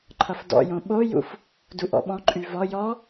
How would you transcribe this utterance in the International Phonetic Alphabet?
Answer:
ǃʰ ʌ f d ɔ̰ j õ ɓ o j ṵ f | d u ʔ ɔ̰ ɓ ɔ̃ ǃʼ y v ɔ j ɔ

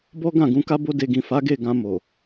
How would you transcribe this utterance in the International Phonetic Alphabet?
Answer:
b ɔ˦ ɡ ã˦˨ ɡ ũ˧ k a˦ b o˦ d e˧ ɡ ĩ˨ f a˨˦ ɡ e˦˨ ɡ ã˧ m o˨

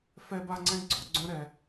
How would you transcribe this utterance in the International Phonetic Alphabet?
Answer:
f ɛ˦ b a˦ ŋ͡ǀ ɛ̃˦ ɡ͡ǀ ɔ˨˦ ɡ͡ǀ œ̃˦ ɾ ɛ˦

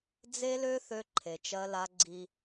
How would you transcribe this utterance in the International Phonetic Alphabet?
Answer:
d͡z e˦ l ø˦ θ ø˦ ǃʰ e˨ t͡ʃ ɜ˦ l a˦ ɡ͡ǀ i˦

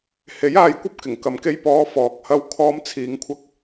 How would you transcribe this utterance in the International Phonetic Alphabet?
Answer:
h e˨˥ j aː˧ j kʷ ɐ˥ p̚ k ɪ˨˩ ŋ k ɐ˨ m k e˧ j p ɔː˨˧ f ɔː˨ k̚ h ɐ˧ w kʰ ɔː˧ m t͡sʰ iː˨˧ ŋ kʷʰ ɐ˧ k̚

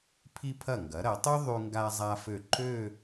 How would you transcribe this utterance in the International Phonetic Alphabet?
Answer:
pʰ i˧ pʰ ɐ˧˩ ŋ ɡ ɐ˩˧ ɾ ɐ˩˧ tˤ y˥ ðˤ y˧ ŋ ɡ a˧ zˤ a˧ f ø˧˩ ǃ ø˥˧

